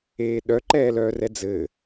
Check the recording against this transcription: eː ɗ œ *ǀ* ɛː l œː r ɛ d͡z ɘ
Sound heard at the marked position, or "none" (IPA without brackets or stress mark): ǃ